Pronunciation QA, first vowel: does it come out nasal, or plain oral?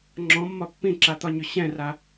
nasal